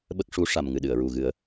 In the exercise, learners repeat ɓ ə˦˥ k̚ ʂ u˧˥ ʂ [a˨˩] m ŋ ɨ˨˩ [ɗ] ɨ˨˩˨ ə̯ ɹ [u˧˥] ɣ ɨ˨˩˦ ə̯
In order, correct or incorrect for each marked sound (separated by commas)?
correct, correct, incorrect